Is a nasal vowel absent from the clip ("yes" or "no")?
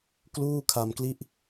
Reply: yes